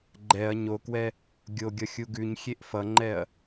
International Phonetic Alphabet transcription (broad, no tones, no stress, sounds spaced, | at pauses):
ɡ͡ǃ ɛ ɐ̯ ɲ o k w ɛ | ɡʲ o ɡʲ ʌ xʲ u ɡ ʉ ɲ xʲ e ʔ f ʌ ŋ͡ǃ ɛ ɐ̯